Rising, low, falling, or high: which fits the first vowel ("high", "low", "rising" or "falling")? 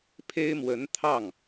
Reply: high